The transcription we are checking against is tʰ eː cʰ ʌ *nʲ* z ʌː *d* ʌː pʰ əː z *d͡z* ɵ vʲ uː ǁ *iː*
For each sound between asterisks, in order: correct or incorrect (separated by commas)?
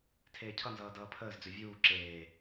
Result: incorrect, correct, correct, incorrect